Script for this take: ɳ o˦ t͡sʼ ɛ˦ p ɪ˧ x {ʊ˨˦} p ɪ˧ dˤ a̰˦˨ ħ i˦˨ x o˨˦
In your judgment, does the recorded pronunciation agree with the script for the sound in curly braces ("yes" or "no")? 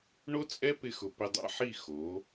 no